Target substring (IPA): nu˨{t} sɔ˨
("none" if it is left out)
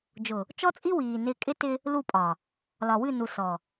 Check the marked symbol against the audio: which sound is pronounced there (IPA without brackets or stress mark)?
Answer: none